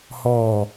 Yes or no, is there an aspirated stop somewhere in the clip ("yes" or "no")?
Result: no